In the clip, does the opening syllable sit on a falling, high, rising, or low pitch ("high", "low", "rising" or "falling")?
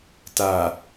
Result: low